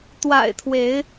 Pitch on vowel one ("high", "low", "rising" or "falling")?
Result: low